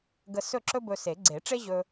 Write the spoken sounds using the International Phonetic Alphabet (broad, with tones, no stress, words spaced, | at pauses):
ɡə˧ sɵ˥˨ǁɵ˥ bɵ˧se˨˩˦ ɡ͡ǀe˨˩˦ʈ͡ʂe˥ʑɵ˧